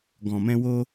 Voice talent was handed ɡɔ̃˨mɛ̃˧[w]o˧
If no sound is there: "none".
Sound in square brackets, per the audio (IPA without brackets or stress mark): w